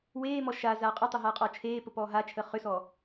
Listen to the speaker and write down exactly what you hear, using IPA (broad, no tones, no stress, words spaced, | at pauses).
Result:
weːmɔ ʃa zaːqʼətˤə ɦaːqʼɔːt͡ʃʰeːpə pɔːɦat͡ʃʰəː χʏsɔ